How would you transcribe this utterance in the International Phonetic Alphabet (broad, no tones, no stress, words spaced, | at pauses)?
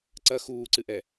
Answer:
ǀɐ xuːǀɨʔɛ